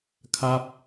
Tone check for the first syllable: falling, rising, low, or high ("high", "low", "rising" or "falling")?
falling